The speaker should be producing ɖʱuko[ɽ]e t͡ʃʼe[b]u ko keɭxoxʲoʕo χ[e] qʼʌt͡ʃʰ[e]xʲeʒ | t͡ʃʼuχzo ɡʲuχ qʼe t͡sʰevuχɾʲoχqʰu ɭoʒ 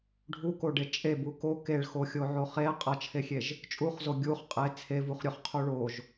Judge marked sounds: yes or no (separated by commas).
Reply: no, yes, yes, yes